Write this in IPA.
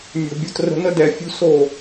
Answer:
mʲo̤˨bʲo˧trə̤˧ nə˦dɛ˨ fʲṳ˦so˦˨

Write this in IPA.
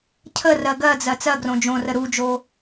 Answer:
cʰərɜ ɡɜd͡zɜ t͡sɜɡrõ d͡ʒõrə ɾud͡ʒo

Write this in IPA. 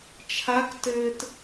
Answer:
t͡ʃʰak tɘːt

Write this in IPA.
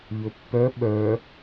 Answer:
ʎɵpːœ ɓœ

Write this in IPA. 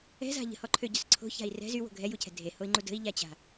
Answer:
ɛ̤za̤ ʎə̤hɔǃʰøɟœs ǀʰo̤ça̤i̯ rɛ̤ zywo̤ ɡʱɛjucʰɛ̤ dʱehoi̯ŋ͡ǃu də̤i̯ʎat͡ɕa̤

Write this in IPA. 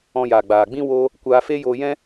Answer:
ɔ̃˧jaː˨ɡ͡baː˨ɡ͡bĩ˦ wo˦ | kʷaː˧feː˦joː˧jɛ̃˦

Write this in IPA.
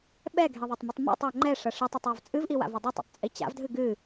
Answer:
ɓɛɡʱe ðˤotˤmɨtˤmɔ̰tˤo ŋ͡ǃɛ ʂɐʂɨtˤetˤ ɔvt͡sʼɨvʔi wa̰vɔdˤetˤɔ̰tˤ t͡sʼit͡ɕa̰vdʱɨ ɡɨ

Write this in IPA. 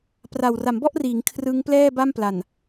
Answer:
pra˨˩w ra˩˦mbɔ˥˩ʔriː˩˦ŋ kʰrɯ˦˥ŋplɛː˥˩ba˥˩mpla˨˩n

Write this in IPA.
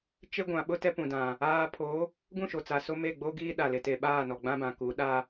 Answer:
t͡ʃe˦ɡʷã˨ɓʊ˦ tɛ˦pũ˨dã˨ | aː˦ pʰo˨˦ | ɡũ˦˨ʃo˨t͡sa˨ so˦me˦˨ ɡ͡bo˦ɡiː˦ɗa˨lɪ˨ te˨ ɓaː˦˨nɔ˨ɡ͡bã˦bã˨ ku˨˦ ɗa˦

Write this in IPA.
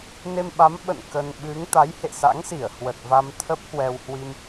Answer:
ne˧mɓa˨˦m ɓə̰˧˨n kə˧n ɓɨ˨˦ŋ t̪a˨˦jhḛ˧˨sa̰˧˥ŋsi˧˩ə̯ hwə˨˩t̚ va˧mt̪ʰə˦˥p̚hwɛ˧w hwi˧m

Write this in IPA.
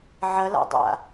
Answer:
ʕɐla̰dˤa̰

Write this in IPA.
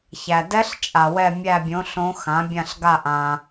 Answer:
çæ˨ dɛ˦˥ɬ t͡ʃʼa˨wɛ˥˧ mʲæ˥˧bʲõ˨˥ ɬõ˦˥xã˨˥bʲã˥˧ɬɡa˥˧ ʔã˨

